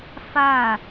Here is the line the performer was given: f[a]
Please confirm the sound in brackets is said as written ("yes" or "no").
yes